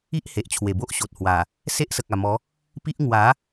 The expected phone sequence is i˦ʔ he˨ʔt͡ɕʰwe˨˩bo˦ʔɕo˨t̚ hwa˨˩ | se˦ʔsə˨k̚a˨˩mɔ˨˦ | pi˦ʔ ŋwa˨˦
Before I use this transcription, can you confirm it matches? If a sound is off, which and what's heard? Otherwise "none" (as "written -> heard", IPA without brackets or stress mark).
none